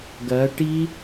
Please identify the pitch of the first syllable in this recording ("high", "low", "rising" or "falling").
rising